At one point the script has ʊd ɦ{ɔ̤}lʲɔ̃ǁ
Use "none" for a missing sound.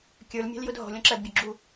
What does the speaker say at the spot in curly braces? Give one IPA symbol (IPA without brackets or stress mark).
ɔ̤